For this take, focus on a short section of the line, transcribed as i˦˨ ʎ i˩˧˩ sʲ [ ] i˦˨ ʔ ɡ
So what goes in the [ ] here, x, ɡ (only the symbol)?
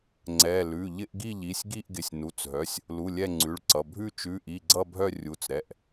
ɡ